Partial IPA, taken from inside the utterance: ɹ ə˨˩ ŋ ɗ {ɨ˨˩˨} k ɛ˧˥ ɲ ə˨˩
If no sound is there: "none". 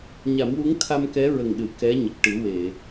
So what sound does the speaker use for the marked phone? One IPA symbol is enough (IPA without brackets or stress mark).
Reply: ɨ˨˩˨